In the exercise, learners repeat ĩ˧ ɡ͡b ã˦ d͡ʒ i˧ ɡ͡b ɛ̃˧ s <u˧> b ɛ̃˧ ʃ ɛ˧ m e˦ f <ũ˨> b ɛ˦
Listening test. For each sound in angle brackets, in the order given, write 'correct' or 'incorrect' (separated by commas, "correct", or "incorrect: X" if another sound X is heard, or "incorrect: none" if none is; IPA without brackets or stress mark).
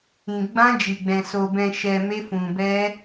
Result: incorrect: o˧, incorrect: ũ˧